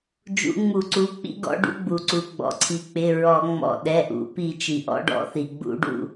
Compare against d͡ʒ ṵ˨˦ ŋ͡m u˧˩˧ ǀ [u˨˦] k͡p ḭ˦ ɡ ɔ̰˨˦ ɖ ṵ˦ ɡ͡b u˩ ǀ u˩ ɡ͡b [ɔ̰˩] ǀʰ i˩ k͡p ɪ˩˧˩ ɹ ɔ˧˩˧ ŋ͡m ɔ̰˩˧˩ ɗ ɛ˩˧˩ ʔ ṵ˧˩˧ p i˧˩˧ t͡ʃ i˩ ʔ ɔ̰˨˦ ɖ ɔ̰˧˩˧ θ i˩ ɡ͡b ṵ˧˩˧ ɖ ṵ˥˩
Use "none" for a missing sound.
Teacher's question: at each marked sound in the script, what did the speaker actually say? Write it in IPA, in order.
u˩˧˩, ɔ̰˩

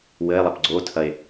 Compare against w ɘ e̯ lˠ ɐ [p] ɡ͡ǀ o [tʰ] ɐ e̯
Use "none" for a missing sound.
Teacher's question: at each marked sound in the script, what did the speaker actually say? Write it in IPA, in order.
p, tʰ

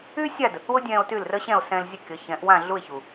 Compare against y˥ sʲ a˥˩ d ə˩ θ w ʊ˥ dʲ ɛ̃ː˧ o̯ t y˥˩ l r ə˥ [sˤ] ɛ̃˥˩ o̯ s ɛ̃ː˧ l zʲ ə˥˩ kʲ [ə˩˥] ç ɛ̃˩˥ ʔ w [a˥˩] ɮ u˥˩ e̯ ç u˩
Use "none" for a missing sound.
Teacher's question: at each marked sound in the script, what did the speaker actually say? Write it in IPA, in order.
ɕ, ʌ˩˥, ã˥˩

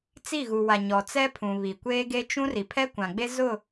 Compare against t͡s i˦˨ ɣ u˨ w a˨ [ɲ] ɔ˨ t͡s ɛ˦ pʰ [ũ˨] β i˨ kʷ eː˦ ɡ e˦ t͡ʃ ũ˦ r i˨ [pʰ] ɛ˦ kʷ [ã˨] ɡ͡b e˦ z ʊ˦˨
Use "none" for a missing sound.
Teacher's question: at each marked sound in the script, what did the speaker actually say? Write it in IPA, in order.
ɲ, ũ˨, pʰ, ã˨

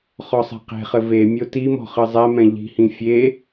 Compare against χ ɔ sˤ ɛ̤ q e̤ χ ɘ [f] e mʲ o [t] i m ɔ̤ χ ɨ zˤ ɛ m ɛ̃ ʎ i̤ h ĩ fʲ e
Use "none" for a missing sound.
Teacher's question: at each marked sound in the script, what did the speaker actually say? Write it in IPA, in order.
v, t

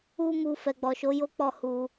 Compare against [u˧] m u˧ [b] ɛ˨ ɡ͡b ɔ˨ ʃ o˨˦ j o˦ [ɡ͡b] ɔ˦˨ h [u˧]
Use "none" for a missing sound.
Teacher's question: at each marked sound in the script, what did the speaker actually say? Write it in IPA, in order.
u˦, f, k͡p, u˧

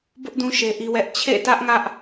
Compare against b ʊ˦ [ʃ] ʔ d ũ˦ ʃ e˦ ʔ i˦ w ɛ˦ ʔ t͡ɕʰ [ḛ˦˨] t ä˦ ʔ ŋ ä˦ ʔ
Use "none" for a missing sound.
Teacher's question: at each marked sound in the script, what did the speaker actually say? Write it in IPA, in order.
none, ḛ˦˨

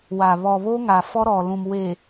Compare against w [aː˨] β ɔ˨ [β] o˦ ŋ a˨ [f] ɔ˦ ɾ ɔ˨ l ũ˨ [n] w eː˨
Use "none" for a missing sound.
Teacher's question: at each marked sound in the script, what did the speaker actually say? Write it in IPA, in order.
aː˨, β, f, m

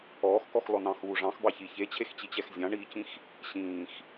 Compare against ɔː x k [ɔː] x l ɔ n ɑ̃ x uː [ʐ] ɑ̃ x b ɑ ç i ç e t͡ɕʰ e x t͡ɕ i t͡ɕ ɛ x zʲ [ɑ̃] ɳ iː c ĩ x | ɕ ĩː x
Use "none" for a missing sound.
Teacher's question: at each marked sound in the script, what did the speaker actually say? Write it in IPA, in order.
ɔ, ʐ, ɑ̃

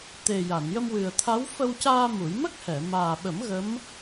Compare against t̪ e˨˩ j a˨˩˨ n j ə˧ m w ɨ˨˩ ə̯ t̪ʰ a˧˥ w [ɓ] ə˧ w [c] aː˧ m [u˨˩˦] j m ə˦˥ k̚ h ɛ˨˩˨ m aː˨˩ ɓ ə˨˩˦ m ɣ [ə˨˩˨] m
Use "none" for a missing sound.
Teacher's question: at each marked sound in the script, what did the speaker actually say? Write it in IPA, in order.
f, c, u˨˩˦, ə˧˥

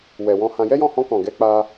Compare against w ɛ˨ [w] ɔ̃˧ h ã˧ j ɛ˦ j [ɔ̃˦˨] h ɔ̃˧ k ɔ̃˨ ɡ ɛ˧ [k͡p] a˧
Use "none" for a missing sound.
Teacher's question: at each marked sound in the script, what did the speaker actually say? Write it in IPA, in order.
w, ɔ̃˦˨, k͡p

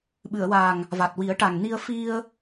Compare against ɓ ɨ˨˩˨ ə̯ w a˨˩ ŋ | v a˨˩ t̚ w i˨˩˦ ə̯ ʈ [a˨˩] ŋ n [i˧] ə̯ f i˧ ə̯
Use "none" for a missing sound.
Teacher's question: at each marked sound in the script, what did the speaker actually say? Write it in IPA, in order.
a˨˩, i˧

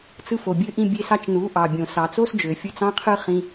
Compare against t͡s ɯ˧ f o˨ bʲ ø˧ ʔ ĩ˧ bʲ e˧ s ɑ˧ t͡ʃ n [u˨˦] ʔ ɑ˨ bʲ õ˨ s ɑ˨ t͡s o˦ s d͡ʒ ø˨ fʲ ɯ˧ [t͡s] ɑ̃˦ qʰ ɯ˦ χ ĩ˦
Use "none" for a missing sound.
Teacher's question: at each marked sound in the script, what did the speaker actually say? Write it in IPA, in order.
u˨˦, t͡s

